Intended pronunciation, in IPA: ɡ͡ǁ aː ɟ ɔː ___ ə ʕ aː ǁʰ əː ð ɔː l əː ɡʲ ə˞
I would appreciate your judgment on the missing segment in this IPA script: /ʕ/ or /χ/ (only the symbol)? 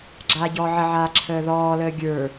ʕ